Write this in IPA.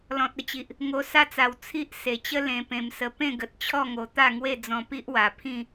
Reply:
lɔ̃˨t̚ə˦t͡ɕi˨ʔ | ŋo˧sa˦t͡sa˨˩w t͡sʰi˦ʔ se˨˩t͡ɕə˦ lẽ˧pẽ˧msə˧ pẽ˥˧ɡə˨t̚t͡ɕʰɔ˥˧ŋo˨˩ t̪a˥˧ŋwe˥˧ d͡zɔ̃˧pi˦ʔwa˨˩ pʰĩ˥˧

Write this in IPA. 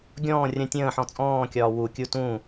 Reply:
ɡʲɔ̃ː rʲə̃ tʲə̃ːħɔ̃ t͡sʼɔ̃ːkʲɒː wu kʲutũ

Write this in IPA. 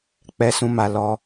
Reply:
k͡pɛ˧sũ˧ma˧ lɔ˧

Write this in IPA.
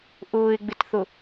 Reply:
ʔʊːɪ̯ɡ͡bɪtθʊ

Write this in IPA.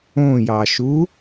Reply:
õjɑʃu

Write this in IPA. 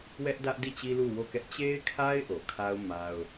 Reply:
wɛ˦ʔdä˦ʔdi˦˨ t͡ɕi˦lu˦˨wo˦˨kɛ˦ʔ t͡ɕe˦ɪ̯kʰa˦ɪ̯ ʔo˨kʰa˦ʊ̯ ma˦ʊ̯

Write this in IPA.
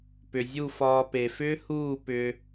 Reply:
pʏ˨zʲu˦˨fɒː˧ pe˨fʏː˦huː˦˨ pʏː˧

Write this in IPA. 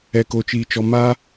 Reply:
ɛ˨ko˨t͡ʃiː˨t͡ʃɔ˨ ma˦

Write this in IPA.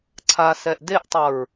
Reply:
ǀʰasɛʔ deʔtˤʌɹ

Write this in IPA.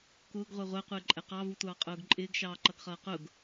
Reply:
kʊːɡʁʷɛ ʁʷæqʷɪːǃʼɛ qɑvutʷɑːqʼʊːɡ ǃʼɪːɡʃɑːǃʌɡχʌː qʊɡ

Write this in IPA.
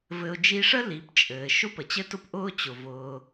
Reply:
vɘ˧ʊ̯ d͡ʒi˧ʂə˦ li˨˦pt͡ʃʼɘː˨ ʃʊ˦pə˨t͡ɕɘ˦tʊ˦p ʔʊː˦t͡ɕʊ˨ vʊː˧

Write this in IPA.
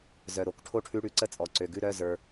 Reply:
zœ˨˩ɾo˧˩˧k ʈʰo˥˧ʈʰʉ˧˥˧ɽʉ˧˩˧ ǀə˥˧t͡sʼɔ˨˩ǀø˨˩ɡʉ˥˧ ɾœ˧˥˧zə˞˧

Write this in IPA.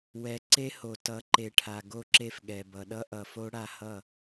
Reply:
wɛ˨ ǀe˦ho˨ tʌ˨˦ǃe˨ʈʰa˨ ɡo˦˨ǁe˦f ɠɛ˨bʌ˨ ɗʌ˦ʔʌ˨fo˦ ɽa˦hʌ˦˨

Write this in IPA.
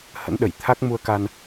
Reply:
hə̰˧˥nɗə˧˩jt̪ʰa˦˥k̚ mu˧ə̯ka˧n

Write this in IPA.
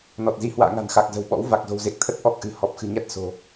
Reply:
nɔ˨˩t̚zi˨˦ hwa̰ː˧˨ŋa̤˨˩nxa˨˩k̚ zə̤˨˩wɓɔ̰˧˥w va˨˩k̚ zo̤˨˩wze˨˩k̚t̪ʰə˦˥t̚ ʔɔ˦˥k̚ʔɨ̤˨˩ hɔ˨˩p̚xɨ̤˨˩ɲa˦˥t̚ so̤˨˩

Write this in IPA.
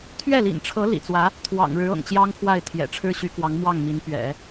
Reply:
t̪ʰɥɛ˥˩lḭ˨˩nʈ͡ʂʰɤ˧˥ lḭ˨˩t͡swä˧˥ | t̪ʰwɑ̰˨˩ŋɻɻ̩˧˥ ɤ̰˨˩ŋt͡ɕjɑ˥ŋpʰwa˥˩ɪ̯ t̪ʰjɛ̰˨˩ʈ͡ʂʰɻ̩˥ɕy˧˥kwɑ˧˥ŋ mwɑ˥˩ŋmi˧˥n pɥɛ̰˨˩˦

